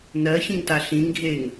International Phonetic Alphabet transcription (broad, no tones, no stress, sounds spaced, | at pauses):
n ɜ ç ĩ ŋ t a ɬ ĩ ŋ ɡʱ e ŋ